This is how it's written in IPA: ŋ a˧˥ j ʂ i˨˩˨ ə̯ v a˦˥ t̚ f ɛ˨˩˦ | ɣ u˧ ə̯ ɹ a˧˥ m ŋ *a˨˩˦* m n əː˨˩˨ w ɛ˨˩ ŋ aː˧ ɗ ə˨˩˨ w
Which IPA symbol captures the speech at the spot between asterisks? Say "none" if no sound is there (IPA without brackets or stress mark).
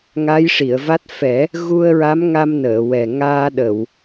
a˧